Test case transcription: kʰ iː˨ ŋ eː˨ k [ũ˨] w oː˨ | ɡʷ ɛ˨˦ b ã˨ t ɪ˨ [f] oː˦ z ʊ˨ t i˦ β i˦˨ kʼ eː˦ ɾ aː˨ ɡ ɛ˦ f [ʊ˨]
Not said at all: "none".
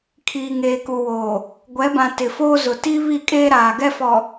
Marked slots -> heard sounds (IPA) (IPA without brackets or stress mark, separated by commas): u˨, f, ɔ˨